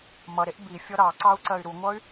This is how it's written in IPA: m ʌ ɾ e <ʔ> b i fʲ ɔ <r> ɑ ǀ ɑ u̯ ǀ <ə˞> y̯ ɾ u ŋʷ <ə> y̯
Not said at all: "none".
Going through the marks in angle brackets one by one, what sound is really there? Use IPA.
ʔ, ɾ, ɜ, ʌ

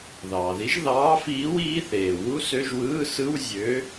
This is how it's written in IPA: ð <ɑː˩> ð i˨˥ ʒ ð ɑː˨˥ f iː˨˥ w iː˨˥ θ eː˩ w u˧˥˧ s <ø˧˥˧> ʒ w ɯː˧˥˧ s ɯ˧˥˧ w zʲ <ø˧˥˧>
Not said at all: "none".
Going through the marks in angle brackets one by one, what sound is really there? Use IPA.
ɑː˩, ø˧˥˧, ø˨˥

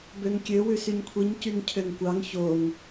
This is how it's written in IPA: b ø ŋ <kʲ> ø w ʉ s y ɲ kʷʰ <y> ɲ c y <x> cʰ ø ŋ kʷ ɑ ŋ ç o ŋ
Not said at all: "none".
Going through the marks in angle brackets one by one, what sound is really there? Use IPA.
kʲ, i, ŋ

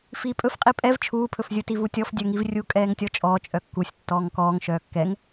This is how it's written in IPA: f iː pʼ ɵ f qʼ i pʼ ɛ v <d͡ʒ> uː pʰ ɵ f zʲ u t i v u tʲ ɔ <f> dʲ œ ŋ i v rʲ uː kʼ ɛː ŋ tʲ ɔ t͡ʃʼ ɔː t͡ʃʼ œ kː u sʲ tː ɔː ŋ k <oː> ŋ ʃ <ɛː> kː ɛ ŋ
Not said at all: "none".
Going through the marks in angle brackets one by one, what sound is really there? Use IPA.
t͡ʃʰ, f, ɔː, œː

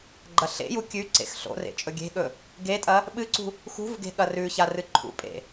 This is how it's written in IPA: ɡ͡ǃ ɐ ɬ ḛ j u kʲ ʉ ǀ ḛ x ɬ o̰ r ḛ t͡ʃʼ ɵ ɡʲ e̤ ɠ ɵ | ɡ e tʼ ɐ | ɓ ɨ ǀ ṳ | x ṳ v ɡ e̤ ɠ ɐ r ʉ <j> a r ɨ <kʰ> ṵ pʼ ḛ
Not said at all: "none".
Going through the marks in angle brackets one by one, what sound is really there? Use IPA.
ç, ǃʰ

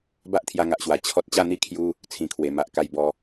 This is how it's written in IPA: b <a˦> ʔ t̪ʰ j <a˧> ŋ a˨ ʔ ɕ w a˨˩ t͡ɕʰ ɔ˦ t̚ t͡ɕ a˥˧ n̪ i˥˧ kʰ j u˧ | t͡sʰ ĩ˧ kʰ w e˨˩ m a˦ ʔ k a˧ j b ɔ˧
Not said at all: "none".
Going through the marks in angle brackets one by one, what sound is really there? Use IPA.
a˦, a˧

